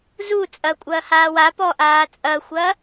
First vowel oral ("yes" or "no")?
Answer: yes